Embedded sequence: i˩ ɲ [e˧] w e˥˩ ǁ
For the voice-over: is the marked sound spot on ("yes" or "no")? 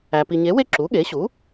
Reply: no